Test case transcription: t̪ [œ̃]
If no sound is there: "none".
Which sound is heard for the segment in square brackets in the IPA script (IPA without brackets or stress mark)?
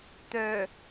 œ